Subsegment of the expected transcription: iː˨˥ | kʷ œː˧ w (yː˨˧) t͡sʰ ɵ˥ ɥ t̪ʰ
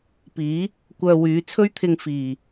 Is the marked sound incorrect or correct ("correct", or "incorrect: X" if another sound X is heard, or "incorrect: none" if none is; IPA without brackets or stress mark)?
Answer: correct